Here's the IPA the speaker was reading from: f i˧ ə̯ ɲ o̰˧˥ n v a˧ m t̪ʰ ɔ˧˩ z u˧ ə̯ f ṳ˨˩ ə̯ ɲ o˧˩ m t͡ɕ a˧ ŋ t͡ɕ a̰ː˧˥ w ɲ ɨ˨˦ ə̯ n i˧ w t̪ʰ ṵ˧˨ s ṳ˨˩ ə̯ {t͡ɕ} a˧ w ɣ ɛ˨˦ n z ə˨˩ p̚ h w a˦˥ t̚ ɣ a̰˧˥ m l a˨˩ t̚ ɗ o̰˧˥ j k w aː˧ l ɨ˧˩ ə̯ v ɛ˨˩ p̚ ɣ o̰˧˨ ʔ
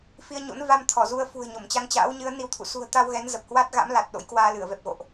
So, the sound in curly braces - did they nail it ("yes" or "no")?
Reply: no